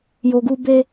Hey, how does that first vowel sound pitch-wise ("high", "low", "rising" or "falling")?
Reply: low